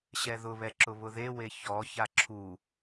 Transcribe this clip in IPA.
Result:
ɕɛðʊβɛǁʊ βʊðewe çɔ çaǁʰu

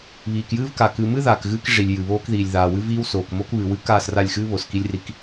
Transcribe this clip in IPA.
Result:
βiː˨kjɨː˦vka˨ kɨ˨mɨ˦ ðaː˨kɣɨː˦kʐi˨lʲ jɨ˨βoː˦kðiː˨lʲ ðaː˨wɨ˦viː˦wsoː˨k mo˦kβɨ˨wɨ˦ kaː˦˨sra˦˨lʲxɨː˦ βo˨ski˦lʲri˦k

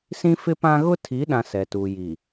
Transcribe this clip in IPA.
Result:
sĩ˦fɪ˦pã˦ ɣʊ˦tʰi˨˦ɗã˨ sɛ˨tu˨ji˨

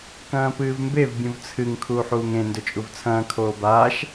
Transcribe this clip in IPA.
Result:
kɐ̃ːpɨːvmbev bʲũvt͡sʰɨŋ kʰuːħuːŋẽ ndɵt͡ʃʼuvt͡sʰɐ̃ː kʰoːbaːʃ

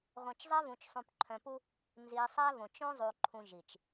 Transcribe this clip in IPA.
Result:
ʁʷœ̃˨t͡ʃzˤɛ˦vũ˨t͡ʃ sˤũ˨pǃʰœ̃˨pu˦ | nzi˨sˤæ˦võ˨t͡ʃ õ˦zˤu˨ǃʰũ˨ ʒi˨t͡ʃ

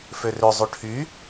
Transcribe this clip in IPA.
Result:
førøzˤu ʈʰy

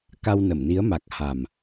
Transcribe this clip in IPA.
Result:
ka˧wnə˧˩mni˨˦ə̯ ma˨˩k̚ ha˨˩m

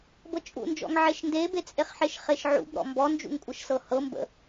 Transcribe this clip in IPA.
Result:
bɤt͡ʃʼṵnd͡ʒɔ̰ŋ ʕeʃndebe t͡sʼeχħeʃχeʃʕṵb ɾɔ̰mbɔnd͡ʒṵŋ kʷʼɤʃsɤhɤ mbə̰

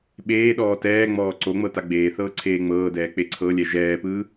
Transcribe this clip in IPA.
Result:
ɓeːɗɔː tɛːŋ͡mɔː ǀoŋ͡mɤ taɡ͡beːθɤː ǀʰeːŋ͡mɤːdɛː k͡peǀʰɤlʲɛ ʒɛːpɯː

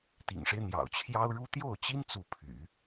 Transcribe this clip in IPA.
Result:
t̪ḭ˨˩ŋʂe˦ɪ̯ n̪jɑ̰˨˩ʊ̯t͡ɕʰjɑ˥ʊ̯ɻu˥ t̪jo˥˩ʊ̯t͡ɕi˥n t͡su˥˩pʰy̰˨˩˦

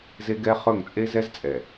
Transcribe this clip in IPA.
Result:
ze˦ɡɛ˦χɵ˦˨ŋ t͡sʼe˦zɛ˦zt͡sʼɛ˨

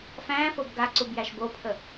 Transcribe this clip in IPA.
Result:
fæ̃ːfob ɡaǀubjæʃ bopʰə

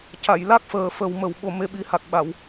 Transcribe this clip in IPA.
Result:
ca˨˩˨jla˦˥k̚ fəː˨˩fə˨˩w mə˨˩w ɓo˧me˧˥ɓi˧˥ha˨˩k̚ ɓa˨˩˨w

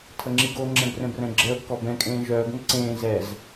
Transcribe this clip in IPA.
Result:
tʰəŋ͡ǁiɡo ŋ͡ǁɛ̃brɛ̃brɛ̃ɡ͡ǁəːb kɔbɛ̃ kʼẽːʒœːɡ ŋəǀẽː zɛz

